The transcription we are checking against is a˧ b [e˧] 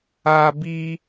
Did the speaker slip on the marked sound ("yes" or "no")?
yes